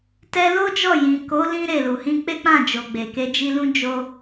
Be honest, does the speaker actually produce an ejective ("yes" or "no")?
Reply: no